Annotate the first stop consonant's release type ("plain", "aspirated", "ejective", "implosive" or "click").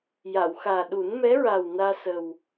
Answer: implosive